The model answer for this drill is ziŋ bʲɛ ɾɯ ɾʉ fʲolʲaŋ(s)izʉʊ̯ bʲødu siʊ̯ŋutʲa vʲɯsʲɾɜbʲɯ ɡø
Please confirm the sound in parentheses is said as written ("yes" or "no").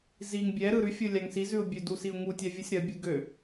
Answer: yes